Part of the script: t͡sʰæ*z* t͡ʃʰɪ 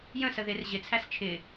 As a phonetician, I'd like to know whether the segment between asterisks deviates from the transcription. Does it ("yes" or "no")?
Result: yes